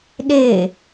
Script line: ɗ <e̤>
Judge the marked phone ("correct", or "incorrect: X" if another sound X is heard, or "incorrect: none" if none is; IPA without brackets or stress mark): incorrect: e